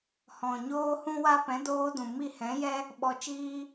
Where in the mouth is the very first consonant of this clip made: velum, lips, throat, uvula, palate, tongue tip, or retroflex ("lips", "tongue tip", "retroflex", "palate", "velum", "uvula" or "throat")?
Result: throat